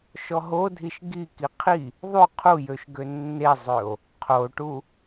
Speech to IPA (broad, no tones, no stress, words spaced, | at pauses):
ʃɔɦodʱiʃ ɡiki qʰi | ðˤy qʰujøʃ ɡønːezˤøo̯ | qʰoʈu